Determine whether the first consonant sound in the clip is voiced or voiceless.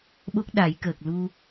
voiced